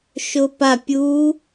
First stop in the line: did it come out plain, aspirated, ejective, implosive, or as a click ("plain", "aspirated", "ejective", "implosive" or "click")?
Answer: plain